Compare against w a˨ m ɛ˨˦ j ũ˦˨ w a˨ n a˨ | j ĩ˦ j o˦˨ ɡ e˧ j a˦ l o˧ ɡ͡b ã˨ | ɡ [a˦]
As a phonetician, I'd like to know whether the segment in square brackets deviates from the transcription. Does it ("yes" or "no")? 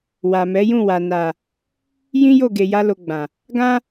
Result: yes